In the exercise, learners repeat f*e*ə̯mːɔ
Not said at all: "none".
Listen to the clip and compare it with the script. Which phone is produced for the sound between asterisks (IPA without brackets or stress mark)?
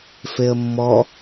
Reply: e